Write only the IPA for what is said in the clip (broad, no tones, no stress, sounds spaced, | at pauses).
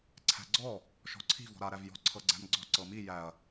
ǀʰ æ̤ ɡ͡ǀ ɔ | ʃ ɔ̤ ǀʰ i̤ v ɔ̤ ɾ a ɾ æ v j ɔ̤ ǀʰ ɤ ɡ͡ǀ æ̤ m ɡ͡ǀ ɔ̤ ǀ ɤ m i j æ ɐ̯